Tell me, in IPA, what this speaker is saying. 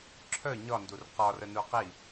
ǁʰ œ ɲ ɒ n d u r q ɒ r ə n u q i

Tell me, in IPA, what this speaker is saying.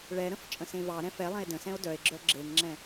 ɭ ɛ ɾ ə̃ f t͡ʃʼ ə̃ s ẽ v ɑ ɾ ɛ̃ f ɛ lˠ ɛ̃ e̯ d ə̃ s ɛ̃ o̯ d œ e̯ ɡ͡ǁ œ ɡ͡ǁ e ŋ ŋ͡ǁ ɛ̃

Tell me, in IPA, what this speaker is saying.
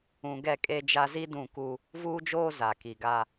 ũ˨ ɡ ɛ˦˨ kʼ e˦ d͡ʒ a˦ z i˦ d ũ˦˨ k u˦ | v uː˦ d͡ʒ oː˦ z a˨ k i˨ ɡ a˦

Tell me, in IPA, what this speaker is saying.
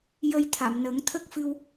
j ə˧ j t̪ʰ a˨˩˨ m n ə˨˩˦ ŋ t̪ʰ ə˦˥ k̚ f ɨ˧ w

